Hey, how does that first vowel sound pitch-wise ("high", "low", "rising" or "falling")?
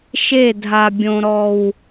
falling